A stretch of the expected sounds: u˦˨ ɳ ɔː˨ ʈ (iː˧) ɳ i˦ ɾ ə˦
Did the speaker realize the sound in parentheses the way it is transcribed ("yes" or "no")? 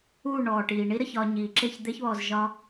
no